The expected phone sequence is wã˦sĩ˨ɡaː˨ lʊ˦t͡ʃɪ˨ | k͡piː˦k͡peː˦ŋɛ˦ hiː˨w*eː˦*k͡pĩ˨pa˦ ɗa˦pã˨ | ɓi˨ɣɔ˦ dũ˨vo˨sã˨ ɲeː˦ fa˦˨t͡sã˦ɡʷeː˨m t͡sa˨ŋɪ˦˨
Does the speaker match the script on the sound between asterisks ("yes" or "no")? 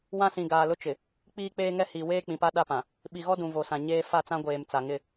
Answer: yes